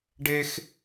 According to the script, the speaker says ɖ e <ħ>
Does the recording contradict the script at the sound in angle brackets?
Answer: yes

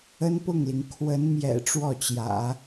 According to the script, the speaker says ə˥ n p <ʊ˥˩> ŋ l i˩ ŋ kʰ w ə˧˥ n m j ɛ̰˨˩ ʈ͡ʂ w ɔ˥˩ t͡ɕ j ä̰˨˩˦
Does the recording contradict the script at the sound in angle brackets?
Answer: no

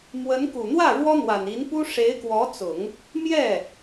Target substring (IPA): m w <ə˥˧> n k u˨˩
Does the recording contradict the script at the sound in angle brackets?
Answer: yes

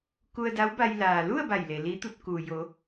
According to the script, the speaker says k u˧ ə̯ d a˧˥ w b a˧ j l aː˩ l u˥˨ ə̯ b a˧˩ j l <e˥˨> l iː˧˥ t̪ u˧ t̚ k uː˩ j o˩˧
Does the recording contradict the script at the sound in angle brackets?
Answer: yes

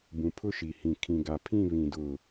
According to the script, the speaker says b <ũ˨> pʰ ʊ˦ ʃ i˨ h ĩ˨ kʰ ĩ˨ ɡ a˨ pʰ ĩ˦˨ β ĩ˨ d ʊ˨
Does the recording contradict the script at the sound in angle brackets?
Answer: no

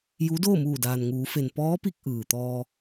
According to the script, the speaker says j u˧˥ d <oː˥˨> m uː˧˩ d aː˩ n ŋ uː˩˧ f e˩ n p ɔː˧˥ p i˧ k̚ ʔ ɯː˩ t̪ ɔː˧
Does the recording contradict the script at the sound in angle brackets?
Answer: no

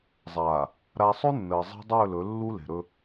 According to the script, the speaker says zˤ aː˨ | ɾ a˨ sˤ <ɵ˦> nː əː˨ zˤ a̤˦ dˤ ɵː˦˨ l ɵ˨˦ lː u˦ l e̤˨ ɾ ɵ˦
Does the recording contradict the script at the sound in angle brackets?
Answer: no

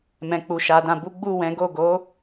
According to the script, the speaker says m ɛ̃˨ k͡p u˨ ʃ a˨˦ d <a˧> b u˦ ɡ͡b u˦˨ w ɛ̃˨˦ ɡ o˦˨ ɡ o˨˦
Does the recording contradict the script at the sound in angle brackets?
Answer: yes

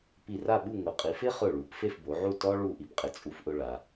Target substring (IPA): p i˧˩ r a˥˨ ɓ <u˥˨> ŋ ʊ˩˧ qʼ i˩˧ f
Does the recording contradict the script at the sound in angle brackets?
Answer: no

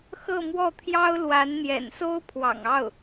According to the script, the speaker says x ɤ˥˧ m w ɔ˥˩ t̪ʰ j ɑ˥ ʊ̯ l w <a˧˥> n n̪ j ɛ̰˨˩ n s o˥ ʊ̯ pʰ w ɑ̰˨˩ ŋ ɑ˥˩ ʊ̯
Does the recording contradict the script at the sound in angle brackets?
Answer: no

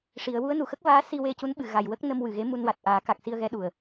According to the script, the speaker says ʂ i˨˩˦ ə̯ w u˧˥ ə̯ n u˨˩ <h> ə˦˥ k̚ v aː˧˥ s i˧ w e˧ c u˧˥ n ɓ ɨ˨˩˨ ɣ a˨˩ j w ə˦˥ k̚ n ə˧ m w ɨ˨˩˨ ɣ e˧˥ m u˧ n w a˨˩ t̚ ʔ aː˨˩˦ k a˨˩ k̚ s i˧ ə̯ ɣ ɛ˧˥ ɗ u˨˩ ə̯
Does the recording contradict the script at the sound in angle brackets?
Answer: yes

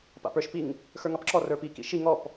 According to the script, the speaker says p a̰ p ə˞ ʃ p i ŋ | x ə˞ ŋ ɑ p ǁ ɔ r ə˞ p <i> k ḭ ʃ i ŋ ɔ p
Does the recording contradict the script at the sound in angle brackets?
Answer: no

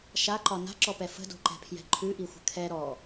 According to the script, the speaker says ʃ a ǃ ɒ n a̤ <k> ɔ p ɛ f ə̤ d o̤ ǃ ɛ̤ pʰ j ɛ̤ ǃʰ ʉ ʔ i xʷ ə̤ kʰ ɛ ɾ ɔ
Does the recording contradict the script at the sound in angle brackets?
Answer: yes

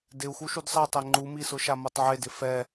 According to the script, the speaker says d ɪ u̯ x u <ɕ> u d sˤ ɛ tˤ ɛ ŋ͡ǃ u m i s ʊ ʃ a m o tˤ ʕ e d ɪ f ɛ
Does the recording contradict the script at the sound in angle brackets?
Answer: yes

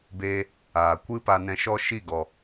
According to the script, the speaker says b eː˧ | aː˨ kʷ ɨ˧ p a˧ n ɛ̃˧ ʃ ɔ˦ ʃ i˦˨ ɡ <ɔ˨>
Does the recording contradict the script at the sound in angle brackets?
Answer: no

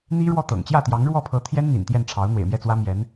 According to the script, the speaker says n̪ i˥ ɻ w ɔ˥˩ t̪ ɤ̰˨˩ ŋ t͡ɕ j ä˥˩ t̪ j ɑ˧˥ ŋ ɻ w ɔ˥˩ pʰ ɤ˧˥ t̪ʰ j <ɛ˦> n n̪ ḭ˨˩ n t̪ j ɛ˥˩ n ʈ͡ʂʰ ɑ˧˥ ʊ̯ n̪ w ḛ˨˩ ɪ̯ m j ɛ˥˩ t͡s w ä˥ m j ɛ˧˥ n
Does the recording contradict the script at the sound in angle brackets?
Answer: yes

